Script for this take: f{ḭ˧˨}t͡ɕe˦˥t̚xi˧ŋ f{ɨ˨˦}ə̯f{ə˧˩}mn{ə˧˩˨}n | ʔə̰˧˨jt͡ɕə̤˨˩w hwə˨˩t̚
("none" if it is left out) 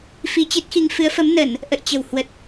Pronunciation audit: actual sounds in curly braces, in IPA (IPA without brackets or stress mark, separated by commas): i˧, ɨ˨˦, ə˨˦, ə˧˩˨